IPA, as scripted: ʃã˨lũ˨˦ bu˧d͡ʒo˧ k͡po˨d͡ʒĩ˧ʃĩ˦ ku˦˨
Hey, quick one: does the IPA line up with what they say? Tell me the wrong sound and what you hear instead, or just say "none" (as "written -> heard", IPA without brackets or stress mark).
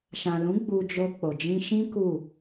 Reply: b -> ɡ͡b